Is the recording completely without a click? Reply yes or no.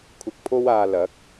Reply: yes